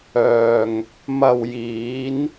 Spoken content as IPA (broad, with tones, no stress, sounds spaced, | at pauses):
œː˨ ŋ | m ɐ˨ w j iː˨˧ n